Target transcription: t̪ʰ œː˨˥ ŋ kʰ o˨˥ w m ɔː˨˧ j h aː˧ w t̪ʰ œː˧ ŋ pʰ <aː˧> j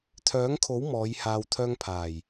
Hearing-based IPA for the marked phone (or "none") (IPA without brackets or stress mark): aː˨˩